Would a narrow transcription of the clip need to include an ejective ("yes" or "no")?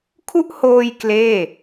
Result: no